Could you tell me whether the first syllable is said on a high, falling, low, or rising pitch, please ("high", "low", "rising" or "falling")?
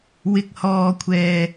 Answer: low